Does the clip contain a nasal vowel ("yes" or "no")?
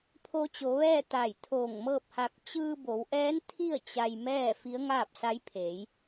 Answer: no